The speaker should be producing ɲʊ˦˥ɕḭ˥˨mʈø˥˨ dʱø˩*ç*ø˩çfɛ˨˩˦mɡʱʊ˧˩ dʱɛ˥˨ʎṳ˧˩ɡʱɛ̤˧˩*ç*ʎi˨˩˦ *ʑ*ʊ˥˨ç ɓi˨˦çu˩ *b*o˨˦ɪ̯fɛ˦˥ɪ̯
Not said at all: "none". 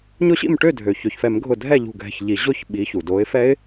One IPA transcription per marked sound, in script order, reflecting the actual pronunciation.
ç, ç, ʑ, d

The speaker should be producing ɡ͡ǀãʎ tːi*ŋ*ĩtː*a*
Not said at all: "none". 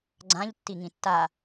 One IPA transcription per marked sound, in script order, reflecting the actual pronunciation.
ŋ, a

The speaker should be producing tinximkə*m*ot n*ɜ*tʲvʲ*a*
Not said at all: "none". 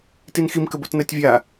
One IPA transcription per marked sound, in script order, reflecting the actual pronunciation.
b, ɜ, a

